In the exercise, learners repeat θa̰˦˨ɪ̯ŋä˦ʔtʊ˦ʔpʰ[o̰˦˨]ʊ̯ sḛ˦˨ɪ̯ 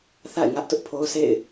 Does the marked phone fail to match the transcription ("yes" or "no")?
yes